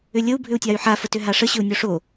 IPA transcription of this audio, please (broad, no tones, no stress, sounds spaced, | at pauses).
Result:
ʏ lʲ ə u̯ bʱ ʏ u̯ tʲ a y̯ ħ a f ə t ʏ ɦ a ʂ ə ɕ ʏ u̯ nʲ o ʂ o